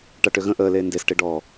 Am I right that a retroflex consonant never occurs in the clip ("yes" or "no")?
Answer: no